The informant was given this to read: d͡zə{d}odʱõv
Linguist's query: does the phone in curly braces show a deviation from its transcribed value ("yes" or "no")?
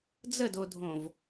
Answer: no